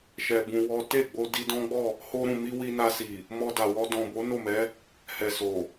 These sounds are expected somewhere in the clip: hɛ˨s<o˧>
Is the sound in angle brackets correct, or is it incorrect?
incorrect